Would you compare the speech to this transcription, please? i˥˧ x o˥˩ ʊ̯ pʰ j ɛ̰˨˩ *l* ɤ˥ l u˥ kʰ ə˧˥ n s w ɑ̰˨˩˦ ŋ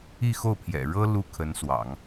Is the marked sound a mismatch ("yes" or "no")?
yes